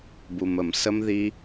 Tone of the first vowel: low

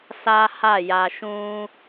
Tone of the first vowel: high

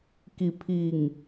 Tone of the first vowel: low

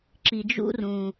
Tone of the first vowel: low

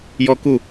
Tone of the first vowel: falling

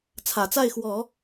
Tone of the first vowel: low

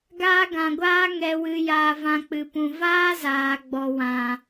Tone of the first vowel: high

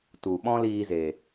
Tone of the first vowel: low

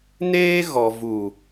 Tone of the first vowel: high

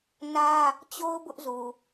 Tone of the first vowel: high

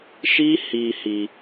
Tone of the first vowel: high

